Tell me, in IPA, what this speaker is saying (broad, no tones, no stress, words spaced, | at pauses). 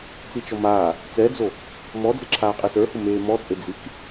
t͡sit͡ʃɔmaː | t͡sɛd͡zo | mɔd͡zeǁʰaː qʼɛsə˞hʊ meːmɔt͡sʼe d͡zik